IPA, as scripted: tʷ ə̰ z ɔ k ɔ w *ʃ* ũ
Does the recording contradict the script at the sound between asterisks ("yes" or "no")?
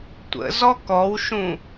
no